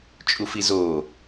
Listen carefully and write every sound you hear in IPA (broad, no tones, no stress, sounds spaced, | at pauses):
t͡ʃʼ u f i z o